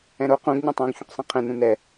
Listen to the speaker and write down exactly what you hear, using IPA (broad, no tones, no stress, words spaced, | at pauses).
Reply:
ɛ̃ɾo qũɡ ɲũtˤõɡ çũqsˤĩqʰɛ̃ nũnɛ